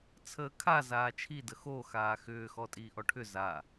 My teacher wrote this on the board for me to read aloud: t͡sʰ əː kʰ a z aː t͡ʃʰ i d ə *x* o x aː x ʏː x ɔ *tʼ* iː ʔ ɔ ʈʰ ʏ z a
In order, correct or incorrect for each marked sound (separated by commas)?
correct, correct